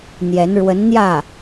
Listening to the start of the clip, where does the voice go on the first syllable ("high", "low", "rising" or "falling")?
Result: rising